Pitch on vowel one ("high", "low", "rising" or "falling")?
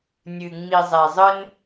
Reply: low